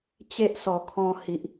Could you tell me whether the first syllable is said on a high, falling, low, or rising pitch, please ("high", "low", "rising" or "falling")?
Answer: high